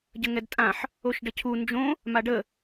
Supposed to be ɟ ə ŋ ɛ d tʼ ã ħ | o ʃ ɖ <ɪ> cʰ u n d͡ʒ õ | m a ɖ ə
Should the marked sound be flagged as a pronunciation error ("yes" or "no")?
yes